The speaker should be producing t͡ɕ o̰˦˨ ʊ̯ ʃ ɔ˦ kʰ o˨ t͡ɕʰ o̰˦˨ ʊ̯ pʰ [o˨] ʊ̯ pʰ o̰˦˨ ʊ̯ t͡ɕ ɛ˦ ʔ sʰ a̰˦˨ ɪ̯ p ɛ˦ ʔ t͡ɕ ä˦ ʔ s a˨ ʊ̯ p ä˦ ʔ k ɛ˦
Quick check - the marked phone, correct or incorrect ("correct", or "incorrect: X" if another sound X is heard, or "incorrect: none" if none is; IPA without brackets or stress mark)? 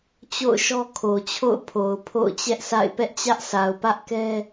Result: correct